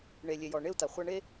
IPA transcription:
ɳe˨lʲe˨jɔ˨ ɳe˦u̯ta˨ χʷa˦ɳe˦

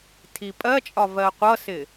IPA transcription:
tʰipʼɜt͡ʃʼɒ vɜqʷʌsɪ

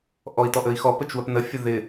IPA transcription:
ʔɔi̯tɔʔəi̯xɔ pət͡ʃwəpnə fʲəðɪ

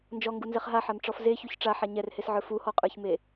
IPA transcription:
nd͡ʒɔŋɡunzɛχ ɦaħamʈ͡ʂɔf zeçuç ʈ͡ʂaħa ɲɛrhesʕə˞ fuhɔqʼə˞çme

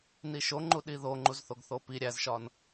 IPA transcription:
niʃoŋ͡ǃu ɗiðo ŋ͡ǃuzθoɡθopi ɾʲæzʃɒn

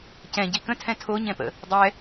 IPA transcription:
cɛ̃ ɟikə̃tʰɛ̃ tʰoɲɛ̃pə̰ | dˤɛ

